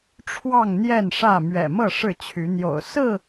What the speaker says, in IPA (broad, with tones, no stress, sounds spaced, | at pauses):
ʈ͡ʂʰ w ɑ˥˨ ŋ n̪ j ɛ˥˨ n ʂ ä˥˨ m ɥ ɛ̰˨˩ m ɤ˥˨ ʂ ɻ̩˥˨ t͡ɕʰ y˨˦ n̪ j o̰˨˩ ʊ̯ s ɹ̩˥˨